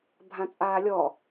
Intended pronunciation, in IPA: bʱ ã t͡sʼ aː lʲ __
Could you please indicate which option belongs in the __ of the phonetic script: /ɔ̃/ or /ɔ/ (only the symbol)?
ɔ